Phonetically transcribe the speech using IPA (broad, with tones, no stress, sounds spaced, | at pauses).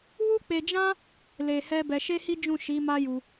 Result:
w u˦ k͡p e˧ d͡ʒ ã˦ | l e˧ h ɛ˦ b ɛ˧ ʃ e˦ h i˦ d͡ʒ ũ˦˨ ʃ i˨˦ m a˦ j u˧